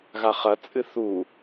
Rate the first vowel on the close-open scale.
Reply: open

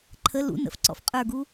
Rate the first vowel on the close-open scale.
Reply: mid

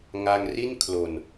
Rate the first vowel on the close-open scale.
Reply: open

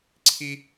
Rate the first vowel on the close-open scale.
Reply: close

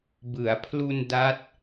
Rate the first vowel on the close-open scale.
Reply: close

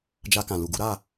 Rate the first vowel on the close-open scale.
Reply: open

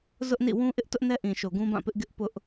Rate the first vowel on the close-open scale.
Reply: close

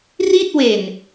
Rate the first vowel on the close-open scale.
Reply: close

